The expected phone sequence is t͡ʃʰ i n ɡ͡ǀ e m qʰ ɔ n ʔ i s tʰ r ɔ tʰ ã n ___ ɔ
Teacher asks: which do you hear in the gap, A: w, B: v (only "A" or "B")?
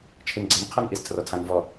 B